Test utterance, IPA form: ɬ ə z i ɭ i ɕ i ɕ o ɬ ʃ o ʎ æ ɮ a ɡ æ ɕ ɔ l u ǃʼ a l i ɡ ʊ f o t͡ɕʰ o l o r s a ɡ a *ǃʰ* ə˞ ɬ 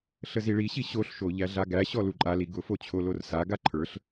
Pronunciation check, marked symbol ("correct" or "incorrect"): correct